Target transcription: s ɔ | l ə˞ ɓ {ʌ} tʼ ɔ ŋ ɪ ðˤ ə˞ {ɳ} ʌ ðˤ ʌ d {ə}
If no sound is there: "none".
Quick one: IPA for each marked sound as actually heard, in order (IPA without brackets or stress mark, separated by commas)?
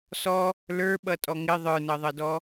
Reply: ʌ, n, ɔ